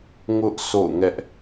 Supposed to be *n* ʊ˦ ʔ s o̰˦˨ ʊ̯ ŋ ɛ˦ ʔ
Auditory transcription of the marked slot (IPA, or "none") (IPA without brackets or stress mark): ŋ